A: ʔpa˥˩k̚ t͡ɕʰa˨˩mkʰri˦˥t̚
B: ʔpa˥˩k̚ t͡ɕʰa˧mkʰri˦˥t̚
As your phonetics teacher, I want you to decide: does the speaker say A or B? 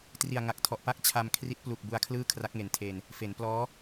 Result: B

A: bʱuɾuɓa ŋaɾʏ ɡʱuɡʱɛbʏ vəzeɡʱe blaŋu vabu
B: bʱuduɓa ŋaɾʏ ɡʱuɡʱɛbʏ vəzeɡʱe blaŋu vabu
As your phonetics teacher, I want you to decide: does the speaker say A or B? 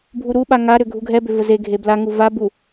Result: A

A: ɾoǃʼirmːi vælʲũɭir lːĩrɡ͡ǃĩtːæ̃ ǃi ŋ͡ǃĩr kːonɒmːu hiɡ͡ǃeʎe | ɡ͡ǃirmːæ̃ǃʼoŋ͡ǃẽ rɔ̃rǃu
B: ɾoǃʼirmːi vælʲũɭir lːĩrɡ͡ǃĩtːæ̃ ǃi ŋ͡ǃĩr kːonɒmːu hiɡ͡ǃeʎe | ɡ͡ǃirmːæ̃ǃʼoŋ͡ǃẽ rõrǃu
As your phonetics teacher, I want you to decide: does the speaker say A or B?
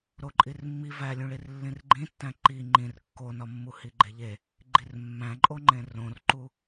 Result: B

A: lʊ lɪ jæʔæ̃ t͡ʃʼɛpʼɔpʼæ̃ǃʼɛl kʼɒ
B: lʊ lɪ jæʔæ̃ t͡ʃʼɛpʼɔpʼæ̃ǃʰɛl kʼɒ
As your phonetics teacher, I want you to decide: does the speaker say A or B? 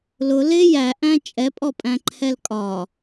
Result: B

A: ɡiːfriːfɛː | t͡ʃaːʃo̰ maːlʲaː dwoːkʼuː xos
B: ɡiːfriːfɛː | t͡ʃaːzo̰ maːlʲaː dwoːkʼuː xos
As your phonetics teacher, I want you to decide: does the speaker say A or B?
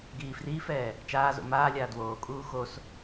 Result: B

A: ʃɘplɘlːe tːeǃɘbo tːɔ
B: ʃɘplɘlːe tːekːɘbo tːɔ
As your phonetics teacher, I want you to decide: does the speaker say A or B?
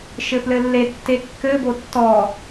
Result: B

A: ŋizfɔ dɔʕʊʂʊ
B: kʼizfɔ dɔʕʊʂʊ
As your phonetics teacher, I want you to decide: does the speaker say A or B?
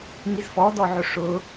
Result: A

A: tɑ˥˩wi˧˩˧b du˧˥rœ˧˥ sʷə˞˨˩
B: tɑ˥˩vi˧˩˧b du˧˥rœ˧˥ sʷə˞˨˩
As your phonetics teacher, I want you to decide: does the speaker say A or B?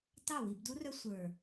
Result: A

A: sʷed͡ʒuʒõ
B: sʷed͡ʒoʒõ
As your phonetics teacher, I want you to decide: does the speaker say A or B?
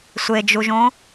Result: A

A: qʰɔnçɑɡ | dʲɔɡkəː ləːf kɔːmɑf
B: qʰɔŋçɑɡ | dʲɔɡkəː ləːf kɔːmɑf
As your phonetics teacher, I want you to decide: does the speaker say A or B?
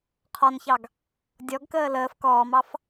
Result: A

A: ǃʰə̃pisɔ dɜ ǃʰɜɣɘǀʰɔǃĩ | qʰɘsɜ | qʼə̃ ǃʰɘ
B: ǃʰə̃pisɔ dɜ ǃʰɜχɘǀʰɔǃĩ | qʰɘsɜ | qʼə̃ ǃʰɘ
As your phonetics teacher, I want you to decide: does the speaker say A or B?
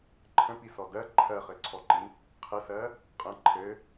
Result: B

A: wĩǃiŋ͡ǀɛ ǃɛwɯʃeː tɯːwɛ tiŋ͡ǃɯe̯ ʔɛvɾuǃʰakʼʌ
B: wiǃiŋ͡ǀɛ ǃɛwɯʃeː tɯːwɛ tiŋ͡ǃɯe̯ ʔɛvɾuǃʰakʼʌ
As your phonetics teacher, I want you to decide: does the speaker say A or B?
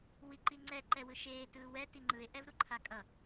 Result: B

